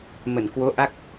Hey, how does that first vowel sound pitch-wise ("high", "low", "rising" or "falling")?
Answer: low